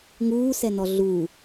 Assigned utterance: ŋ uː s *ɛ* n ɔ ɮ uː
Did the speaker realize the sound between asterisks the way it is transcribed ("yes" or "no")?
yes